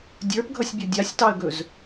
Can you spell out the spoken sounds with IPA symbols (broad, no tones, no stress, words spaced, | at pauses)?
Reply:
dʲə˞pɡʱʌsʲbʲʌ dʲasʲtɑə̯ɡɵz